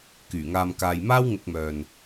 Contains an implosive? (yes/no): no